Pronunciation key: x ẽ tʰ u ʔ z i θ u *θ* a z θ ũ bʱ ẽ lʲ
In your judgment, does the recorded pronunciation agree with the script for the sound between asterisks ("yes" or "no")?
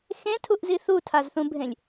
no